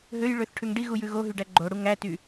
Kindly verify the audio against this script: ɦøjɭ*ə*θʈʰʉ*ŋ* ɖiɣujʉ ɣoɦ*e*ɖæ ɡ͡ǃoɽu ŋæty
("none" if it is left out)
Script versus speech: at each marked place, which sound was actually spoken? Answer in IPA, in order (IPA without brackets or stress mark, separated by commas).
ø, ŋ, y